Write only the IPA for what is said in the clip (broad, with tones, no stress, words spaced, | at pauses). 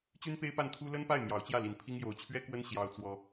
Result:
t͡ɕy˥npe˥ɪ̯pa˥˩nt̪ʰu˥ lə˥npa˥˩ɪ̯ mjɑ˧˥ʊ̯t͡ɕjä˥˩ li˧˥npʰi˥ŋ jo˧˥ʊ̯t͡ɕʰɥɛ˥kwə˥n ɕjɑ˥ʊ̯t͡swɔ˥